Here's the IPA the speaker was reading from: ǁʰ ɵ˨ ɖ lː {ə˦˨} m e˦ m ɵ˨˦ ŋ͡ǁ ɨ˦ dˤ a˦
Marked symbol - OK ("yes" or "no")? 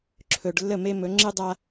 yes